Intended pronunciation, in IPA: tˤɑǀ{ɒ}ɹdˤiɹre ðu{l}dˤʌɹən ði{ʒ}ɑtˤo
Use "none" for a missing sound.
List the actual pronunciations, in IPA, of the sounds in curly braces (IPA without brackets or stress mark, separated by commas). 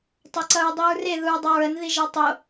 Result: ʌ, ɹ, ʒ